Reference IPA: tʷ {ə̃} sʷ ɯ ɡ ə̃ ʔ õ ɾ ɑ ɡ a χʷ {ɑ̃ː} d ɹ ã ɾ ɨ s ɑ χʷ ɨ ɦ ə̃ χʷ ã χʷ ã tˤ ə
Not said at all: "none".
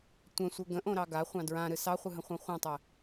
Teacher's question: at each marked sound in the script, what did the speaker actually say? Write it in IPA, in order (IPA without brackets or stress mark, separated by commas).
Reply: ə̃, ɑ̃